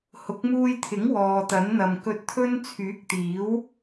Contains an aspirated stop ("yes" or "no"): yes